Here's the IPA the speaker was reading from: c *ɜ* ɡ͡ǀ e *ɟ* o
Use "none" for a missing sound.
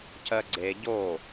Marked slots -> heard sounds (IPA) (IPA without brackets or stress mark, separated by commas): ɜ, ɟ